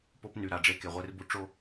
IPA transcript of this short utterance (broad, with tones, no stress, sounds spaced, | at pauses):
p o˦ p n y˨ ɾ a˨ ɖ͡ʐ e˦ k e˨ ʁʷ e˦ r b u˦ ʈ͡ʂ o˦